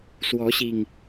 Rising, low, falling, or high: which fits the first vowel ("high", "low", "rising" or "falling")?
rising